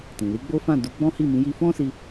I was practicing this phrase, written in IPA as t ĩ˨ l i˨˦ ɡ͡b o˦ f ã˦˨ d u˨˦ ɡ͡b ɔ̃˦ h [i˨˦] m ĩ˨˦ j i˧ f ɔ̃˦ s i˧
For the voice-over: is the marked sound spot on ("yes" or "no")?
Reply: no